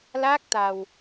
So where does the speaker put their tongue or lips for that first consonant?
tongue tip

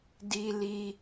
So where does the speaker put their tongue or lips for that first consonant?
tongue tip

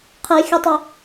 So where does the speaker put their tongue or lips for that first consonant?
uvula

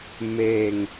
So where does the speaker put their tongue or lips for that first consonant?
lips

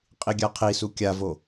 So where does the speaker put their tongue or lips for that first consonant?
uvula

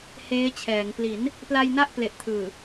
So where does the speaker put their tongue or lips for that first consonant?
throat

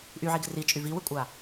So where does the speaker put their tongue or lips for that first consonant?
throat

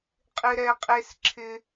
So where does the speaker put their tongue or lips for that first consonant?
uvula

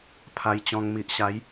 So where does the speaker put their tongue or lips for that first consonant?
lips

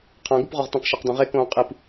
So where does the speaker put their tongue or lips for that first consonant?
uvula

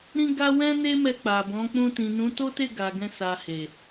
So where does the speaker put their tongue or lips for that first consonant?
tongue tip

